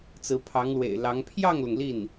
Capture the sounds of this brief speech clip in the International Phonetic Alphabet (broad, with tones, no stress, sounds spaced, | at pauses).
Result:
t͡s ɹ̩˧˥ pʰ ɑ˧˥ ŋ l w ḛ˨˩ ɪ̯ l ɑ˧˥ ŋ pʰ j ɑ˥˩ ŋ l ʊ˩ ŋ l i˥˩ n